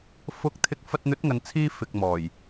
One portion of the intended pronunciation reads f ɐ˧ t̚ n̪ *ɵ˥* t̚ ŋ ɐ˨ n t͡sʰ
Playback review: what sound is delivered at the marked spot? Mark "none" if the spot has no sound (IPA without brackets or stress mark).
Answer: ɵ˨˥